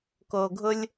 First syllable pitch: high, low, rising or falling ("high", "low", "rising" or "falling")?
low